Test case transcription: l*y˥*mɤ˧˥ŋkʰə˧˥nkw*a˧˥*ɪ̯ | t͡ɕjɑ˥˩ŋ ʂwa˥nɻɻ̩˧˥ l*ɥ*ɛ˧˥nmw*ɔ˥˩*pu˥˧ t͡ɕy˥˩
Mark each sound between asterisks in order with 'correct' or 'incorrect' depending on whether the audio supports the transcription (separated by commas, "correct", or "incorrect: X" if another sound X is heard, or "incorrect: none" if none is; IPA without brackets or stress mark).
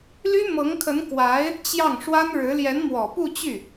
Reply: correct, correct, incorrect: j, incorrect: ɔ˨˩